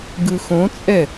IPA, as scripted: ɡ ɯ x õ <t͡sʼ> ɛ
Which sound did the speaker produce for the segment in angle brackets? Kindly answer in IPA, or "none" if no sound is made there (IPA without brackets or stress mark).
t͡sʼ